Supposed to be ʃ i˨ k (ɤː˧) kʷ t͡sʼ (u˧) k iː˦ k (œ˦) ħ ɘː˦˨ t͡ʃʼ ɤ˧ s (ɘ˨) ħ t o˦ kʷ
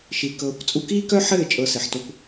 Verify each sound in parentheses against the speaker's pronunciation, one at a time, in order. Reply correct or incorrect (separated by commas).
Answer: correct, correct, correct, correct